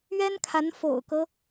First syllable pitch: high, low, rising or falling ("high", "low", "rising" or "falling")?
high